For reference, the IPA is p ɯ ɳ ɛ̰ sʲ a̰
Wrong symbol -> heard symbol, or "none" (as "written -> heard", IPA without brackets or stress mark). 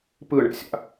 none